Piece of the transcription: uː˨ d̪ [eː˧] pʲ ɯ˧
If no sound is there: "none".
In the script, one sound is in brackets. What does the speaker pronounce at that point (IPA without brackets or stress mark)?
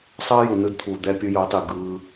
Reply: ɛː˧